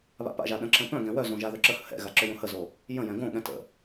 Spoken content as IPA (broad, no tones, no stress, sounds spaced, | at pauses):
β a̰ p a̰ ʒ a ɗ ə̃ ǁ ə̃ p œ̃ ɡ ɛ̃ w œ z õ ʒ a ð œ ǁ ə h ə̰ h ɛ̰ ɣ a ǁ ʏ j õ h ə z o | j ə̃ j ɛ̃ ɡ õ ɠ ɛ̃ t ə̰